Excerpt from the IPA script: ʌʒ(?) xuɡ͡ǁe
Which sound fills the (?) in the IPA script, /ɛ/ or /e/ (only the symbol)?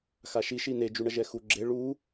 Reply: ɛ